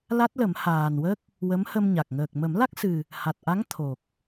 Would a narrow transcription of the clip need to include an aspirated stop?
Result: yes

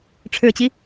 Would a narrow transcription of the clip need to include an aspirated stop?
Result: yes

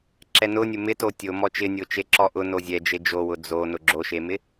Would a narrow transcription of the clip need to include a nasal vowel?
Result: no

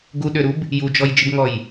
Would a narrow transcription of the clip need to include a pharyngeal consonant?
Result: no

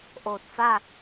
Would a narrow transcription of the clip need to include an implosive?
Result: no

